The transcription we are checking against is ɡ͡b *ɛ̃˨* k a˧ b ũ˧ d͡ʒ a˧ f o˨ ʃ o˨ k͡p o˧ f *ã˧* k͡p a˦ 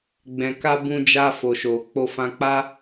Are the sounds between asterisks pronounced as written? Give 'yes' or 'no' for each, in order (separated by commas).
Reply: yes, yes